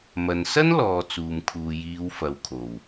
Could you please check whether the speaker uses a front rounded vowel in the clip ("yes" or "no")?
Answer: no